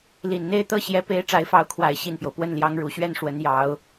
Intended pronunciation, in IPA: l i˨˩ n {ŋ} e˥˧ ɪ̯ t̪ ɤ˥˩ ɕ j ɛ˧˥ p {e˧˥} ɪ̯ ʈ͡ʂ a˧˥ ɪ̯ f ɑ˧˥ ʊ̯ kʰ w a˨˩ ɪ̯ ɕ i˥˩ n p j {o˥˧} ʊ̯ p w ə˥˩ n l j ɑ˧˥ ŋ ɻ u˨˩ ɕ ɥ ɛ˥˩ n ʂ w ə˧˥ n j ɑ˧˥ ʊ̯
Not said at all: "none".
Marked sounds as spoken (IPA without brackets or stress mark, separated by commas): n̪, e˧˥, o˩